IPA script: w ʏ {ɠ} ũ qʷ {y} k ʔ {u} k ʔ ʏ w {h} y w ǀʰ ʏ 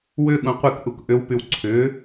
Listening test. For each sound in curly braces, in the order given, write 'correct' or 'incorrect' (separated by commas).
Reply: correct, incorrect, correct, incorrect